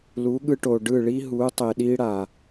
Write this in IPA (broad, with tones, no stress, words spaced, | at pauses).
lu˨˦ɠɯ˧ʈo˨ɖɯ˦˨ ɭi˦ɦu˨˦tˤe˨ ɗi˦ɽa˨